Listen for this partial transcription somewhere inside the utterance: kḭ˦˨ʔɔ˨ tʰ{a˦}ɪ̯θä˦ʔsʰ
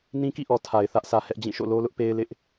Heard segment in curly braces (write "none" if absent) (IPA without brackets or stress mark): a˨